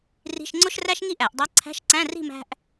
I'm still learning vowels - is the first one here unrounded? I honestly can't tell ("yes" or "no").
yes